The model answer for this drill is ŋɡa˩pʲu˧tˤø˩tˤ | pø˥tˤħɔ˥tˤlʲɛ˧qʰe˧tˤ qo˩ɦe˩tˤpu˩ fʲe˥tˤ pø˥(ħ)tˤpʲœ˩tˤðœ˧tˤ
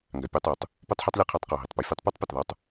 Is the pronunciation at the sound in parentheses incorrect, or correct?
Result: incorrect